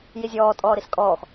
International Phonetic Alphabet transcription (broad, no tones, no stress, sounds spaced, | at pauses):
j i zʲ ɔː tʼ ɔː ɾ i s kʼ ɔː x